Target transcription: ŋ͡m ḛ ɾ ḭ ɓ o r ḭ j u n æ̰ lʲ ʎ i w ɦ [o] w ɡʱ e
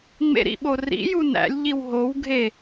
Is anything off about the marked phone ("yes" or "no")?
no